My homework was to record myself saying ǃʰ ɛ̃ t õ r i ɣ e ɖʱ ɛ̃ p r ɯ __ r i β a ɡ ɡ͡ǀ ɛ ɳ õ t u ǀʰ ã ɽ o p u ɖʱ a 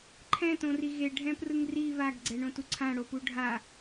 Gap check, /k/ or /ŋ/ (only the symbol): ŋ